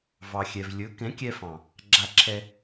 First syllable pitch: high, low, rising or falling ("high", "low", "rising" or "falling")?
low